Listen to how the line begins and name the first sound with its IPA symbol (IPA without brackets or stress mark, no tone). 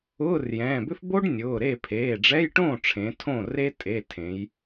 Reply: ʊː